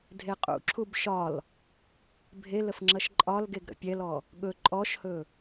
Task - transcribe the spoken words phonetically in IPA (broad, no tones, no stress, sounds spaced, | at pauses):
dʱ e qʼ ṵ ǁʰ u b ʃ ɒ l | bʱ e l ə f ŋ͡ǁ ʌ ʃ ǃʼ ɒ l ɡ e ɡ ɾ ə̰ pʲ ɛ l ɔ | ɠ ɵ ǃʼ ɔ ʃ h ɵ